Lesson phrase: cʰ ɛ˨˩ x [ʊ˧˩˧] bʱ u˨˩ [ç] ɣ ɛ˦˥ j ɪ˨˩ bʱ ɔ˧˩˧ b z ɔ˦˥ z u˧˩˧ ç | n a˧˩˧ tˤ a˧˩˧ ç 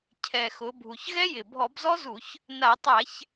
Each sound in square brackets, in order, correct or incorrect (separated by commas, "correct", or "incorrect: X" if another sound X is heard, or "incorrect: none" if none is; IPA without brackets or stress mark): incorrect: ʊ˩˧, correct